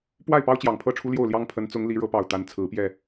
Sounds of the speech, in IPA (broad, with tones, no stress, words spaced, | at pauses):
pwa˥˩ɪ̯pɑ˥ʊ̯ t͡ɕjɑ˨˩ŋpʰɤ˥ʈ͡ʂʰu˥ljo˥˩ʊ̯ ljɑ˥ŋpʰə˧˥nt͡sʊ˧˥ŋ li˧˥ɻɤ˧˥pɑ˨˩ʊ̯ t̪a˧˥nt͡sʰɹ̩˧˥ pjɛ˥˩